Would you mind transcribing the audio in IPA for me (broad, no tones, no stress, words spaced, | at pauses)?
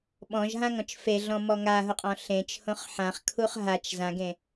ɓɔ̃ʒɦãŋɔ̃t͡ʃ feɮɔ̃mɔ ŋaɦʊqʼɔ̃ ɬẽt͡ʃhõχ ħãχkʰuχ ɦat͡ʃ zãɡẽ